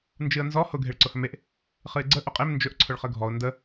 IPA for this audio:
nd͡ʒɨə̯nzɔ hʊ ɡʱeɭǀʊhɵmeʔ | χɨɪ̯ɡ͡ǀə ʔʊqʼem nd͡ʒɵʔ ǀʰʊɭχəɡʱɔʊ̯ ndə

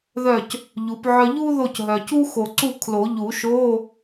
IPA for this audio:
ðœ˥˨c | ʎu˨˦pʕœ˥ ʎu˥ ðo˥˨cɦœ˨ cu˥ xo˨ǀu˥˨ kʰlo˨˩˦ʎu˨˩˦ ʃo˧˥˧

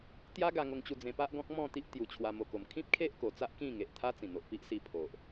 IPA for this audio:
t̪ja˦ɡa˧ŋo˧ŋt͡ɕu˧ d͡zẽ˧pa˦ʔɡɔ̃˦k̚ mɔ̃˥˧t̪i˦ʔ t̪ju˧t͡ɕʰwa˧ mo˨˩ko˨˩m kʰĩ˦p̚kʰe˦ʔ ko˧ t͡sa˦ʔkĩ˥˧ŋe˨ʔt̪ʰa˦ t͡sĩ˨˩n̪o˨ʔpi˦ʔ si˧pʰo˨ʔ

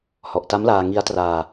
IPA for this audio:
hɔ˨˩ʔta˦˥mlaː˧ ŋi˦˥a̯traː˧

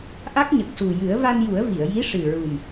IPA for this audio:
ʔa˦˥k̚ɲə˨˩k̚ʂu˨˩ jɨ˨˩˦ə̯va˧nju˨˩˦ə̯ vi˨˩˨ə̯ji˧˥ ʂɨ˨˩ɹu˨˩m

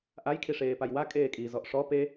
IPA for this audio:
ʔaj kʰiʂeːpajwa kʼeːkʼi zɔʔʂɔ pe

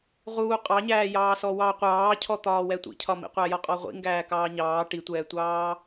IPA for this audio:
ʁuːqʼɑɲæːjɑː sɔwɑ qʷɑːcʰɔt̪ɒːwɛ tʷḭcʰɒmḭqʷæ jɒqʼɔʁʷḭŋɡæː kɑːɲɑː ʈitʷɛːtʷɑː

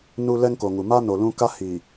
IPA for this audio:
nu˦ lɛ˦ŋko˨ŋu˨ ma˦ no˨lũ˦ ka˦hiː˨

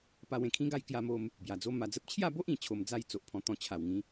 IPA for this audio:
pa˧wẽ˨˩kʰĩ˦ɡa˥˧j kja˧mo˧m | bja˨˩d͡zo˦ma˧d͡zə˦p̚ t͡ɕʰja˥˧bo˦ʔĩ˨˩t͡ɕʰo˨˩m d͡za˥˧jt͡so˨ʔpʰɔ̃˧ t̪ɔ̃˧t͡ɕʰa˨˩wŋĩ˨˦

